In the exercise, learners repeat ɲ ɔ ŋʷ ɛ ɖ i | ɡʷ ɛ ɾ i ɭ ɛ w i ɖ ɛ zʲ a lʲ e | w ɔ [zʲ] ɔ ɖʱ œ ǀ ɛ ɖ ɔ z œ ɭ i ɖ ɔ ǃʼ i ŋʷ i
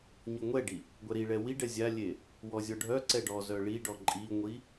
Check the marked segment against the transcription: correct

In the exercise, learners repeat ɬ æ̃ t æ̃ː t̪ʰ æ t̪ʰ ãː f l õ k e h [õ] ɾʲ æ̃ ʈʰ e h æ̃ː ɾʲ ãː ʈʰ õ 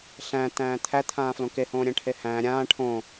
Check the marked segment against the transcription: incorrect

